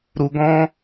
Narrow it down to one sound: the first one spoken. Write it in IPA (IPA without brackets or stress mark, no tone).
ɾ